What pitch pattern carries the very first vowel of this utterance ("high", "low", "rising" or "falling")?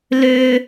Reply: high